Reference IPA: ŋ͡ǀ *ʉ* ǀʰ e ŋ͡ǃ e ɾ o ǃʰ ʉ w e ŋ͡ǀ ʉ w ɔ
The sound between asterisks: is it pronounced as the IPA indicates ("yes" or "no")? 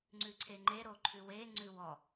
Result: yes